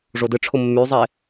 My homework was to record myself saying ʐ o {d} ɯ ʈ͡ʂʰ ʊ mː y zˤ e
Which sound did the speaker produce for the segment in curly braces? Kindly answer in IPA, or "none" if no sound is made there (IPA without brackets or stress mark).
d